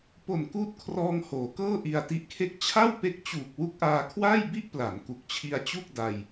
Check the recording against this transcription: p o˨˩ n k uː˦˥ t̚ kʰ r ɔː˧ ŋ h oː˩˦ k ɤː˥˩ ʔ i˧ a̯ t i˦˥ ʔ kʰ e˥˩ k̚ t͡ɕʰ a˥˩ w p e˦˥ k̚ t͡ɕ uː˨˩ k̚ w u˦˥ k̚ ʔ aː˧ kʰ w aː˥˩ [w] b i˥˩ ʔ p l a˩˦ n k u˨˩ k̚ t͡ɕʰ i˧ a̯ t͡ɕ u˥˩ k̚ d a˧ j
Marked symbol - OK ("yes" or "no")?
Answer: no